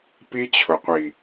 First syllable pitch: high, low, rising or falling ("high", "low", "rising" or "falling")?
high